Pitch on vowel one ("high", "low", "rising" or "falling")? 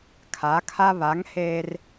rising